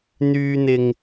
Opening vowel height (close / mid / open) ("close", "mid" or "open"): close